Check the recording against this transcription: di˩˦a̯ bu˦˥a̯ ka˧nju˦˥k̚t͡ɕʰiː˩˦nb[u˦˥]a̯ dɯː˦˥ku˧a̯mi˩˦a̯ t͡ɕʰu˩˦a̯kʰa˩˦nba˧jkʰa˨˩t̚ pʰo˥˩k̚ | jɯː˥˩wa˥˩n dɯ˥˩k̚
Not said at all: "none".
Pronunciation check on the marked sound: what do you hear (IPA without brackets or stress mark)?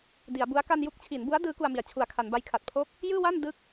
u˦˥